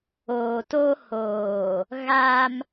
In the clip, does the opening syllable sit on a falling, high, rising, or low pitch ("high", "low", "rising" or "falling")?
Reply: low